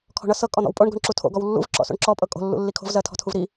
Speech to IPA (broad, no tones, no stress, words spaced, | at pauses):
kʰɔ̤ɳʌ sɤ kʼɔn̪ɔ̰wpʼoɳ ɡo̤ɳǁutʰo̰ ɡɔwlːṵv ǁɔ̰so̰ɳǁɔ pʼɤkʼo̤ lːṵlːikʰo̤v zɜtʰɔ̤tʰuvɾi